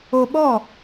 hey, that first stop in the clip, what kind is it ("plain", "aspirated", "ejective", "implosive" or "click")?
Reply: implosive